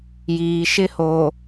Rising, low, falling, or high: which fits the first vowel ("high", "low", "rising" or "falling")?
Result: low